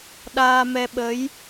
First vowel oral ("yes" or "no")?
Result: yes